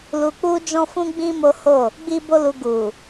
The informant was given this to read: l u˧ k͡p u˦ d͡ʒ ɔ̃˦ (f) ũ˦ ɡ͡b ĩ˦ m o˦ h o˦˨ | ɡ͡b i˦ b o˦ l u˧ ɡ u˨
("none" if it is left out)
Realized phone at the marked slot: f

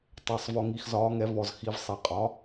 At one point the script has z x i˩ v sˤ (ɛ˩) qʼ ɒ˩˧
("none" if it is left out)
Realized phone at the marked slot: ɛ˩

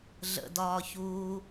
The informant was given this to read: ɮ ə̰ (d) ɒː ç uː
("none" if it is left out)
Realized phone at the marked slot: d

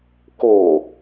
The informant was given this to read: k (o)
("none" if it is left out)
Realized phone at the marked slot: o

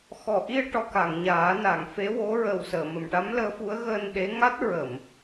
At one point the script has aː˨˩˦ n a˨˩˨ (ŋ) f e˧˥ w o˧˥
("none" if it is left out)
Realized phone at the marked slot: ŋ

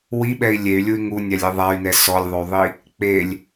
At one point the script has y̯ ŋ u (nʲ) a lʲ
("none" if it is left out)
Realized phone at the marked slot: nʲ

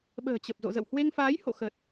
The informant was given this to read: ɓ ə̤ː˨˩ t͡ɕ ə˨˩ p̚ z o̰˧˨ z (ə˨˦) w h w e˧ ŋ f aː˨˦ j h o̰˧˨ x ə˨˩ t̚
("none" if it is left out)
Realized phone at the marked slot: ə̰˧˨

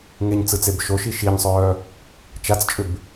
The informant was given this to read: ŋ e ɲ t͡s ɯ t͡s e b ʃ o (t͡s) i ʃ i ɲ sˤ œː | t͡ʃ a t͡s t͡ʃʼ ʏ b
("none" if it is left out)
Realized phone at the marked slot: ʃ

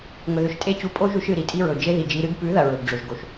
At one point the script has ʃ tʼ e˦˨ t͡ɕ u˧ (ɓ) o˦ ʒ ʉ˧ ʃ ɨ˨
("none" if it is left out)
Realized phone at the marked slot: pʼ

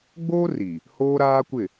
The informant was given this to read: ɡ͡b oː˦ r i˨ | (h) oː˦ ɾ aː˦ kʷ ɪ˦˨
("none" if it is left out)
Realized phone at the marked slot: h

